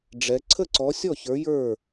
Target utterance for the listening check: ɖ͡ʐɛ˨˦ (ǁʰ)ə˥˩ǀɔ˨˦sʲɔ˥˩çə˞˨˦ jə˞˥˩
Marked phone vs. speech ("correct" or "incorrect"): incorrect